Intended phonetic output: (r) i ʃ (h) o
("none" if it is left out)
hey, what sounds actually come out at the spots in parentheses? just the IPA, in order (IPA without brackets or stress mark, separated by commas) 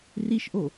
r, ʔ